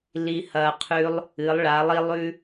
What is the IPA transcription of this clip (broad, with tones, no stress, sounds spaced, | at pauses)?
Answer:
l i˧ h ɐː˧ qʰ ʉː˧˥ lˠ | ɨ˩˧ lˠ ɭ a˩˧ lˠ i˧ lˠ ʉ˧